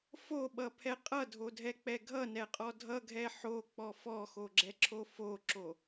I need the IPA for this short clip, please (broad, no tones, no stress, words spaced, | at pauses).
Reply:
foɓʌpʰɛ qʼʌdʱodʱɛk͡pɛ ɡʱʌnɛqʼɔ dʱʌɡʱɛ ħok͡pɔ fɔxoɡ͡ǁɛǁʰo foǁo